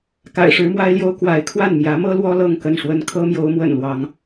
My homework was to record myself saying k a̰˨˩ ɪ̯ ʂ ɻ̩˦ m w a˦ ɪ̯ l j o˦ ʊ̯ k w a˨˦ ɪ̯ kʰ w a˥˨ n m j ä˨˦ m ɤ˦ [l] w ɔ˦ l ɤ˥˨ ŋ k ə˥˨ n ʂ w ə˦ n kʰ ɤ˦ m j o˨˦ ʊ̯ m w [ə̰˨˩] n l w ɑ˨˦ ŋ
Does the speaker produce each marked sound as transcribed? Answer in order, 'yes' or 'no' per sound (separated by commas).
yes, yes